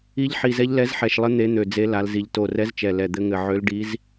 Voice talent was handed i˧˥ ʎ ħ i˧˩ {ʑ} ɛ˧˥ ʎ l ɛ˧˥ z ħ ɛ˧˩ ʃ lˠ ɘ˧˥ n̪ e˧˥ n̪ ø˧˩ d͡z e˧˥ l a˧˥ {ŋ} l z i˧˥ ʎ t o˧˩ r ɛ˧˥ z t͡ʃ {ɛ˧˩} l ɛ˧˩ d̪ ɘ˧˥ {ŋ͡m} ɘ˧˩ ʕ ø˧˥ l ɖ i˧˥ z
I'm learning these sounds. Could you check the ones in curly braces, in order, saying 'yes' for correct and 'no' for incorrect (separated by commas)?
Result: no, no, yes, no